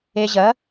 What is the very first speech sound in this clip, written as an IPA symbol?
e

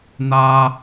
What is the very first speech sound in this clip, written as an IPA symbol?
n̪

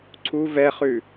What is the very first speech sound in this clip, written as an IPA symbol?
ǀʰ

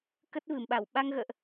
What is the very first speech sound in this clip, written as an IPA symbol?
k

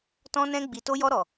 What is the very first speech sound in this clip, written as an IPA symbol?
t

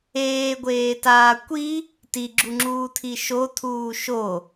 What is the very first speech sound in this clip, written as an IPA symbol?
eː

